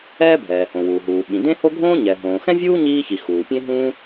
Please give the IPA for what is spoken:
ɛː˥bʱɛː˩hõ˩ wuː˩ɦuː˩ ɓĩ˩dẽ˥ho˥ ɡʱõː˥ ɲɛ˩ ɦõː˩xɛ̃˥vʲuː˥ ɲiː˥çi˩ xuː˩pʲẽ˥ɦũ˥

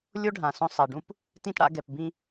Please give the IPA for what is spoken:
lʲo˦ɖʱã˨ sõ˧sˤɛ˨ ɖũ˦p | tĩ˧t ɽa̰˧ ɡɛ˨pbĩ˧

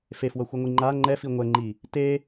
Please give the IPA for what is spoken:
fefwʌxʷɯŋʷi ŋ͡ǃa ŋ͡ǃɛ fiŋʷɛŋ͡ǃi | te

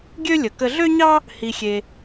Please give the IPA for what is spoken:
ɡʲø˥lʲə˩ kə˧ɮø˥ɲɑ˥ | hi˧xʲe˧

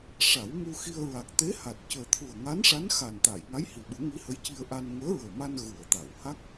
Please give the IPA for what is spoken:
ʂa˨˩˦wmu˧xi˧ə̯ ɹa˨˩k̚t̪e˧˥ha˨˩t̚ cəː˨˩t̪ʰu˨˩ə̯ŋa˧˥nʂa˧˥n xa˨˩nt̪a˨˩˨j ŋa˧˥jhi˨˩ɓu˨˩˦ ŋi˧˥hə˧˥jci˧ə̯ʔa˧n ŋəː˧˥ɹəː˨˩ma˧n ɣu˨˩˨ə̯t̪a˨˩˨wha˦˥k̚

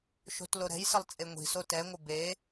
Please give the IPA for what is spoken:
ʃo̤tloɾɛ̤jsəlˠ t͡sʼeŋʷi̤so tɛŋʷə be

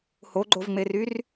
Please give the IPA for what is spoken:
hoɡ͡ǃovŋ͡meryr

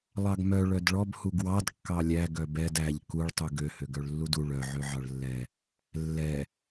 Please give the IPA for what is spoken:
lˠɑɡmœ ɭœdɭɔb huɡwɑd kːɑlʲæ ɡœbɛd æʎ kuɭ tˤuɡø høɡœɭlːudu ɭœ ʕøʕɑɭlːɛ | lːɛ

